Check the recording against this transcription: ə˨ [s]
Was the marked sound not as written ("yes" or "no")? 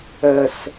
no